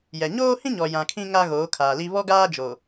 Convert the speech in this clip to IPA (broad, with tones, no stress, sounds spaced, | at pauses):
j ɛ˨ ɲ oː˦ h ĩ˦ ɲ ɔ˨ j ã˨ kʰ ĩ˦ ŋ a˦ ɣ oː˨˦ kʰ aː˨ l i˦ β ɔ˦ ɡ aː˦ d͡ʒ o˨